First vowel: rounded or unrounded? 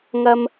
unrounded